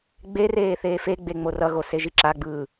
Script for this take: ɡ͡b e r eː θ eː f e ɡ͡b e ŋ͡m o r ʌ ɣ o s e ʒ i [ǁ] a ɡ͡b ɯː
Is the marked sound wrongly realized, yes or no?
no